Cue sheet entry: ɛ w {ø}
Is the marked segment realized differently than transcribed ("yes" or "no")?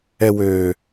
no